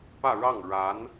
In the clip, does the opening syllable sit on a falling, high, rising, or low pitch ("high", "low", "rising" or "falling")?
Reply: falling